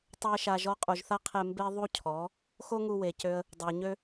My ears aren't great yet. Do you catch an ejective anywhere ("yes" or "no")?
yes